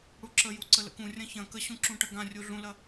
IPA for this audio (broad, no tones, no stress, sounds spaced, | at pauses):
ɽ u ǁ ə j u ǀ ə l ə̰ k ũ rʲ ɐ̃ ç ɐ̃ k ə ɕ ũ ǁ ũ ʈ ɐ ɡ ã rʲ u ɮ ũ l ɐ